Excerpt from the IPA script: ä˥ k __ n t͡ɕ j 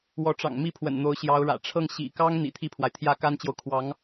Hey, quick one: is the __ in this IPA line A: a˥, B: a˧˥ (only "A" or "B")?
A